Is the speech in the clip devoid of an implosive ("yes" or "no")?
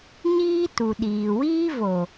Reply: no